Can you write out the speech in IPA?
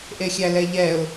ʔ e xʲ æ l ɛ ʎ ɛ ʊ̯

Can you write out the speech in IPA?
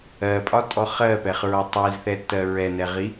ɜ pʼ ɒ tʼ ɔ χ ɜ p ɛ χ ɹ ɔ tˤ i z θ ɛ tː ɜ ɹ ɛ n ɛ ʁ i

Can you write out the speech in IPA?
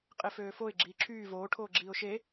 qʼ e f øː f o ɪ̯ ɡ͡ǁ iː ǁʰ yː v oː ʈʰ oː ɡ͡ǁ iː ʊ̯ ʃ e

